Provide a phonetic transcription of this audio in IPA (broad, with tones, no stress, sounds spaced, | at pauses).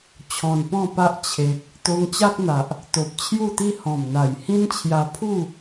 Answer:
t͡ɕʰ ɔ̃˨˩ n p ɔ̃˥˧ p a˦ ʔ t͡ɕʰ e˨ k̚ | t̪ o˧ ŋ t͡ɕ a˦ k̚ n̪ a˨ ʔ | t̪ o˨ p̚ t͡ɕʰ j u˥˧ t̪ i˦ h ɔ̃˨˩ m n̪ a˨˩ j h ĩ˦ n t͡ɕʰ j a˧ pʰ u˥˧